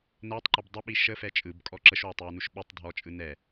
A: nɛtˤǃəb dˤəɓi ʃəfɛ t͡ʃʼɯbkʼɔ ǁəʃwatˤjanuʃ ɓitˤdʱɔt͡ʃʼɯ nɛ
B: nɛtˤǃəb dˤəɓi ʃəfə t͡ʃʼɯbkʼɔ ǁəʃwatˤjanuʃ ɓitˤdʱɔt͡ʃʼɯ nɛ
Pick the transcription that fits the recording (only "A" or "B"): A